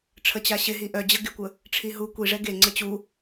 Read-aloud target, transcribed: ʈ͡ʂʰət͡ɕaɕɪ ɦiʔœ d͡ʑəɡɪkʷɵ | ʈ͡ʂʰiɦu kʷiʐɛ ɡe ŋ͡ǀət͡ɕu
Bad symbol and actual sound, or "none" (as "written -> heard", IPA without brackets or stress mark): ɵ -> ə